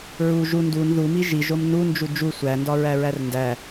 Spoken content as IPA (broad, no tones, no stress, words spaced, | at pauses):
ɹu ʒu ndun ðumi ʒiʒom nund͡ʒu d͡ʒu sʷændɒɹæɹær ndæ